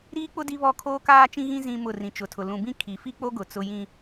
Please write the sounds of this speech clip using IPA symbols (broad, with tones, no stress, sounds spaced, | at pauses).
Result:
ɾ iː˦ k͡p ʊ˦ d i˦ β ɔ˦˨ kʰ oː˦ k aː˦ t͡ʃ ĩ˦ ɣ ĩ˦ z ĩ˦ m ʊ˦˨ r ĩ˨ t͡ʃ ʊ˨ tʰ ʊ˨ l ũ˨ b ĩ˦ kʰ i˨ f i˦ k͡p o˦ ɡ ʊ˨ t͡s ʊ˨ j ĩ˨